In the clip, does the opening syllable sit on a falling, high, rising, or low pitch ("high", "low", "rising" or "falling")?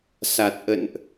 low